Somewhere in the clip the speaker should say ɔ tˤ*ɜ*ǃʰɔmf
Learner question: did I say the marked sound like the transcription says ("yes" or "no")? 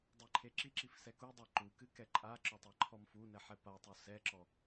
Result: no